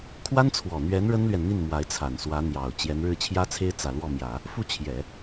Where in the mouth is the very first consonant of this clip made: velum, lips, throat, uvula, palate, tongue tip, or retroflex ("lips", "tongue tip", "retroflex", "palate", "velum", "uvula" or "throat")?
velum